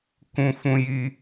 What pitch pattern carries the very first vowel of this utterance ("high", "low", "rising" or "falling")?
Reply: high